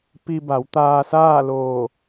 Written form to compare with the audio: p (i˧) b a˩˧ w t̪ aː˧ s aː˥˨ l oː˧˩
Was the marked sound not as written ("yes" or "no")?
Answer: no